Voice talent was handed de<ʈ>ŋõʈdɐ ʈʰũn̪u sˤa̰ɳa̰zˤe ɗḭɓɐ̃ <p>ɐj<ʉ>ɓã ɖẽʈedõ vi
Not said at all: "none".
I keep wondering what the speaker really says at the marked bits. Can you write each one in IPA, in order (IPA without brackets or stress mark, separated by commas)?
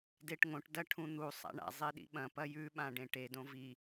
ʈ, p, ʉ